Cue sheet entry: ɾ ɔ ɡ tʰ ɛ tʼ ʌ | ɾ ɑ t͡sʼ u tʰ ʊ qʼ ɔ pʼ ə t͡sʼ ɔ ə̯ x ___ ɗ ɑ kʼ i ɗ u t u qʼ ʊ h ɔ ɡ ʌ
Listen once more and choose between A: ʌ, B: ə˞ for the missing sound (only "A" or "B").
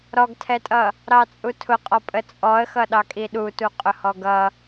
A